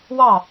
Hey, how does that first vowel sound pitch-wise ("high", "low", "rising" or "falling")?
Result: falling